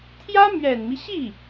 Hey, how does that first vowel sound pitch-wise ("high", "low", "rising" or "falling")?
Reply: high